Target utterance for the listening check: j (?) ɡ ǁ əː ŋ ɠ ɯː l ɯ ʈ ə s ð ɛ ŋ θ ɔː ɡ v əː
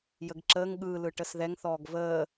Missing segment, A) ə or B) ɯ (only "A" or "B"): A